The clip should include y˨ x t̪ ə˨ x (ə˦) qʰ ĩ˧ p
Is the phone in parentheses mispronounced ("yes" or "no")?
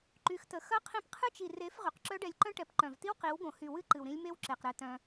yes